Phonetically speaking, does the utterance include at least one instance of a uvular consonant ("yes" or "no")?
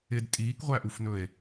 yes